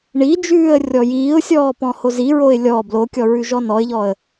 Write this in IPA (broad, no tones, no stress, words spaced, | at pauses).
ɳid͡ʒʉːə̯ rʲɔjiːʊ̯sʲɔː pɔ̃hoziɹoɪ̯ lʲɔ blokʲɔ ɹʉʒɔnɔɪ̯ʎɔə̯